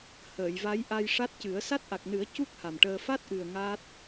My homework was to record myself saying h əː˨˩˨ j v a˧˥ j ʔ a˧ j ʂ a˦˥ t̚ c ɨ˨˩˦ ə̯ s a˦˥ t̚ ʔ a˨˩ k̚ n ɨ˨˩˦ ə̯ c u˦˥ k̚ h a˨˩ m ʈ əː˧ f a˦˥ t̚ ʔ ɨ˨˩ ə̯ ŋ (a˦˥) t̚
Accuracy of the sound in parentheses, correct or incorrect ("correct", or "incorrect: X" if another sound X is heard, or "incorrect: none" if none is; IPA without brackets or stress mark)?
correct